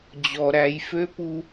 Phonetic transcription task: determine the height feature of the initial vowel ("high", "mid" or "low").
mid